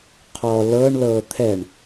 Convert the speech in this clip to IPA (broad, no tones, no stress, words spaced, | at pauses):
qʰɔ lɤɳlɤː t̪ʰɛɳ